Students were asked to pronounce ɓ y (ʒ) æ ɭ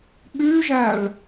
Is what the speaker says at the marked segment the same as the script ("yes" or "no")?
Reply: yes